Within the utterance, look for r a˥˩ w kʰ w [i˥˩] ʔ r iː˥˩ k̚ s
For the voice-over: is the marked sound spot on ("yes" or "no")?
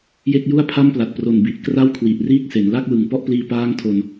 no